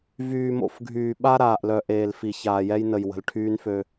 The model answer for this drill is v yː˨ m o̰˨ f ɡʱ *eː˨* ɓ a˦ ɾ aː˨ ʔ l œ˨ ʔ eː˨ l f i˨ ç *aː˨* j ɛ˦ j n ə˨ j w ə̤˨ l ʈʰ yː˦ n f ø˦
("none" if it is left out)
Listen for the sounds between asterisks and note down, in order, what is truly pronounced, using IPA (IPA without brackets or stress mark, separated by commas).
yː˨, aː˨